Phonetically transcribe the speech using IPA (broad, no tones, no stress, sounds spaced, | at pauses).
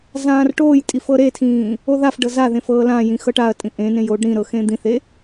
z ãː r ʈ oː j tʼ i f ɤ ɾ e tʰ ĩː | o ð a f ɖ ɤ z a ð ẽ f ɤː l ã j ĩ x ɤ ʈ a ɐ̯ tʼ ĩ ʔ ẽ n ẽ j oː ɖ ɾ ĩ ɾ ɤ x ẽ d̪ ĩ θ e